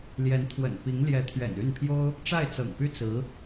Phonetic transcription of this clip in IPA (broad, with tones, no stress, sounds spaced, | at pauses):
l j ɛ˧˥ n t̪ʰ w ə̰˨˩ n p i˧˥ ŋ l j ɛ˧˥ t̪ʰ ɥ ɛ̰˨˩ n y˥˩ n pʰ j o˥ ʊ̯ | ʈ͡ʂ a˥˩ ɪ̯ t͡s ɤ̰˨˩ ŋ p y˥˩ t͡s ɹ̩˧˥